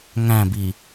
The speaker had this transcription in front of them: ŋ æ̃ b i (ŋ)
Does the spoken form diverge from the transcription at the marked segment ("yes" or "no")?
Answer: yes